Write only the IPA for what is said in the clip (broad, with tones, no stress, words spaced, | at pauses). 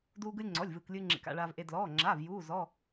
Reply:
duː˧ɡɯ˧lʲŋ͡ǀɔ˩˧˩lʲ vɯː˩klʲɯː˧ŋ͡ǁḛ˩k a̰˩˧˩ɭaː˩vʔe˩ dlɔː˩˧˩ŋ͡ǁaː˩˧˩v juː˩˧˩zɔ˩˧˩